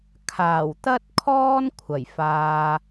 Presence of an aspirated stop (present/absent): present